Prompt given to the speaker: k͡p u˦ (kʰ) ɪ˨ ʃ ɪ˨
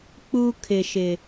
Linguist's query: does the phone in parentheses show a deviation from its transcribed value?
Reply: no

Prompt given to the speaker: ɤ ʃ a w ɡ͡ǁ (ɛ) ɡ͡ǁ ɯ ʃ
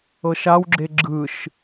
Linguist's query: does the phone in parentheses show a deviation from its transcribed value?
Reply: yes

